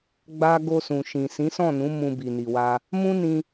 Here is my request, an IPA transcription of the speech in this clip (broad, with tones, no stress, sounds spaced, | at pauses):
ɡ͡b a˦ ɡ o˧ s ũ˨ ʃ ĩ˨ s ĩ˨˦ s ɔ̃˦˨ n ũ˨˦ m ũ˧ b i˨ n i˨ w a˧ | m ũ˦ n ĩ˧